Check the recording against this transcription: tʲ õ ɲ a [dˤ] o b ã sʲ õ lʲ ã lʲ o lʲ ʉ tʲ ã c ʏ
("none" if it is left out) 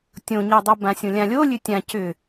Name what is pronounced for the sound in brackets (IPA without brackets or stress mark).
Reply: dˤ